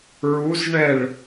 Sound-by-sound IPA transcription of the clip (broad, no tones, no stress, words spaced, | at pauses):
ɹuzɳɛɭ